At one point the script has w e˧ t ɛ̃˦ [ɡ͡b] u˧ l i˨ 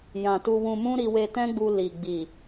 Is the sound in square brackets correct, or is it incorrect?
correct